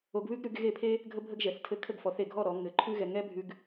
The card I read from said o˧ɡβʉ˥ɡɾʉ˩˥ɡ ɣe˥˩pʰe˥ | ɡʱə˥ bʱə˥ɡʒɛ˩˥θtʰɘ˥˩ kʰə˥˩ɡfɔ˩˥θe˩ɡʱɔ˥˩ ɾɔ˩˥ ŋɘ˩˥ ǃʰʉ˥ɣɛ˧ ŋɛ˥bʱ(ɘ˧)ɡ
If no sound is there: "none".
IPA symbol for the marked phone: ʉ˧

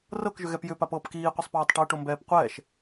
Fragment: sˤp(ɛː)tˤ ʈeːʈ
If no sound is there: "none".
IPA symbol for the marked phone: ɛː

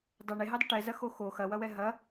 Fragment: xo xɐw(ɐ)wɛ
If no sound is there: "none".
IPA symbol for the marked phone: ɐ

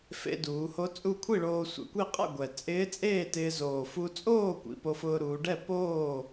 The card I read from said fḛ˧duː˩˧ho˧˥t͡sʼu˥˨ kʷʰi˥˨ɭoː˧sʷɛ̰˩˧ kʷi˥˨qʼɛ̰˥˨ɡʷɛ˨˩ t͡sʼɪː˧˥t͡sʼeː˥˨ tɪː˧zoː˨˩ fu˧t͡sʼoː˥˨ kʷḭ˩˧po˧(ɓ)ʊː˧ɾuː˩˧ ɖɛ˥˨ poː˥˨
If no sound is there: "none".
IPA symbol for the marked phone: f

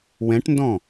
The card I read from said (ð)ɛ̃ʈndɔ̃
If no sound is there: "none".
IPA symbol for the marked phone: w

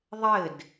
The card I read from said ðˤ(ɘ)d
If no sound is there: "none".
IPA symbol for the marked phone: ɘ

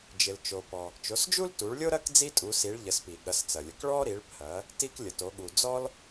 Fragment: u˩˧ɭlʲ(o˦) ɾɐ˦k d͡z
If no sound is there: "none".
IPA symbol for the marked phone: o˦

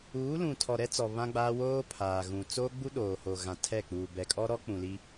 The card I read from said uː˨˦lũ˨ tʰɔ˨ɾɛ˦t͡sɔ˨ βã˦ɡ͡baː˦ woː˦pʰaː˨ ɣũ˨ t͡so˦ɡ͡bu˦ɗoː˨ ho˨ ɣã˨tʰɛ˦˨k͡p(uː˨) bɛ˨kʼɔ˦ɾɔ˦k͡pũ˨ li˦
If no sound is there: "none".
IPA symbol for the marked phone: uː˨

